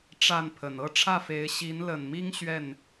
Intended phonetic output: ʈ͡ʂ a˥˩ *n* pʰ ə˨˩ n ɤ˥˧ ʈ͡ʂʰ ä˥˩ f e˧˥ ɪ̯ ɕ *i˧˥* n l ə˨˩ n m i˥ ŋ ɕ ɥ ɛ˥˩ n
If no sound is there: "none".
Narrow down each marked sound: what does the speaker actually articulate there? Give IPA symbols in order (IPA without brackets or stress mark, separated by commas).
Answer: n, i˧˥